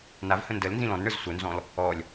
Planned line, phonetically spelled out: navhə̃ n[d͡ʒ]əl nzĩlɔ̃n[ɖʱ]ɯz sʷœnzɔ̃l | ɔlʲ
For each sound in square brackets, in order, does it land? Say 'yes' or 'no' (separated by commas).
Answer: no, no